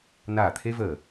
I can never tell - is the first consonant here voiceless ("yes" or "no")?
no